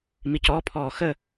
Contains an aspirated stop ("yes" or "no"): yes